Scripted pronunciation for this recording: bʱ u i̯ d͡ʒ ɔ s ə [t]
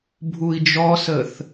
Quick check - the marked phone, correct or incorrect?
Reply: incorrect